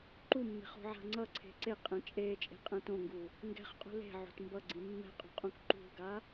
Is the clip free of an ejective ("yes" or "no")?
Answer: no